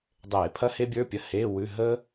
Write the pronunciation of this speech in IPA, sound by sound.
dˤ eː˧˩˧ pʰ ɐ˥ h e˥ bʲ ə˞˧˥˧ pʲ ɐ˧˥˧ h eː˧˥˧ w ʉ˧˥˧ ɦ əː˥

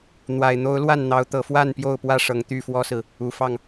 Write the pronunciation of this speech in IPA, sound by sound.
n̪ w a˨˩ ɪ̯ n̪ o˨˦ ʊ̯ l w a˥˨ n n̪ ɑ˨˦ ʊ̯ t̪ ɤ˨˩ f w a˥˨ n p j o˥˨ ʊ̯ p w ä˥˨ ʂ ɤ˨˩ ŋ t̪ y˥˨ f w ɔ˦ s ɹ̩˨ | u˨˩ f ɑ˥˨ ŋ

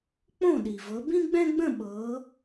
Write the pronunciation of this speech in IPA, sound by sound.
k͡p õ˥˩ ɗ i˩ v ɤ˨˦ b ĩ˥ ɡ͡b ɛ̃˥ ɡ͡b ə̃˥˧ ɓ ɤː˨˦

